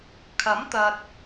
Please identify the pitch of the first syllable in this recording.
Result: rising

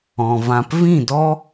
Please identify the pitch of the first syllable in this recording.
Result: low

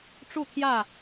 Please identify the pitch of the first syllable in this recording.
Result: falling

